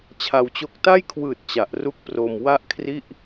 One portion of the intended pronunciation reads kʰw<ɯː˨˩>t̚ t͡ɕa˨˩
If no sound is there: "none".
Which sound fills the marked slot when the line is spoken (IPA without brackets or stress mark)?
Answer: ɯː˨˩